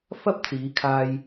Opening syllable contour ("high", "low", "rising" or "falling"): high